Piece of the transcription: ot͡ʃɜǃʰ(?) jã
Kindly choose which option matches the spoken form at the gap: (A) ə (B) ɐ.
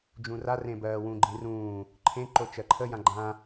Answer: A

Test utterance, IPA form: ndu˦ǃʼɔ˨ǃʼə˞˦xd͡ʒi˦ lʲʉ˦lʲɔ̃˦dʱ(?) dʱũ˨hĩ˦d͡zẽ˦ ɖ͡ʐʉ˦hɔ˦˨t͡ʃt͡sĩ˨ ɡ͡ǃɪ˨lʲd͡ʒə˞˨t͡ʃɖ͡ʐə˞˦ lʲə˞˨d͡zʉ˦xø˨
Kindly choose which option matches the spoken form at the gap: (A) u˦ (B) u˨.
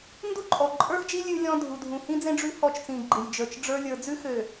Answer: B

